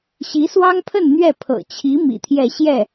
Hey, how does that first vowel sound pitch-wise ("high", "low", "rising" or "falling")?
rising